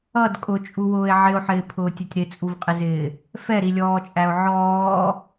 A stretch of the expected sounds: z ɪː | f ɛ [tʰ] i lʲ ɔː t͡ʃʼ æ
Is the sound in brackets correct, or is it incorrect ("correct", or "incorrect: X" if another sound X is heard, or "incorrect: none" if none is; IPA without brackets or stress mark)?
incorrect: ɾ